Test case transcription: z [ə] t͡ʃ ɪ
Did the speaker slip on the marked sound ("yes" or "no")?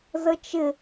no